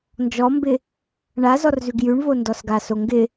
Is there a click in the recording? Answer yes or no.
no